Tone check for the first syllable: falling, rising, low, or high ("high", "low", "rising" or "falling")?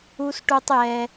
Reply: high